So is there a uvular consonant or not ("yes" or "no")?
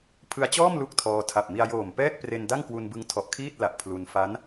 no